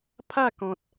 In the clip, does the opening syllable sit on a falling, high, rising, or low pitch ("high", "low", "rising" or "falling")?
falling